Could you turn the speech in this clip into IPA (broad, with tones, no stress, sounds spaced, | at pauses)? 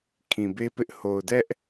kʰ ĩ˨ b e˦ p ɪ˦ ʔ h o˨ ʊ̯ d ɛ˦ ʔ